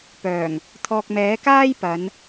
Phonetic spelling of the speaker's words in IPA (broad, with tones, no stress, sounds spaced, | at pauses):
p œː˨˩ ŋ | t̪ʰ ɔː˨ k̚ m ɛː˨˥ k aː˥ j p ɐ˨˧ n